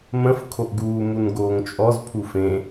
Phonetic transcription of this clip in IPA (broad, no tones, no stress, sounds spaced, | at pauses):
m ə̃ f kʰ o ʔ ɡ uː m u n ɡ oː ŋ t͡ʃʼ ɔ z pʰ u f ẽ